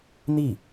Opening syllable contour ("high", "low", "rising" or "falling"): falling